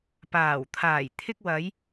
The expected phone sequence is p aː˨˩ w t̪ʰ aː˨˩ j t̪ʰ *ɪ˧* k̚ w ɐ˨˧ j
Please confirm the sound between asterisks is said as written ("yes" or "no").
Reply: yes